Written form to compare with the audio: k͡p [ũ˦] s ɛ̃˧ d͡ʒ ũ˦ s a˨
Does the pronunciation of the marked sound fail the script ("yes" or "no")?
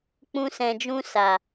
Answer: no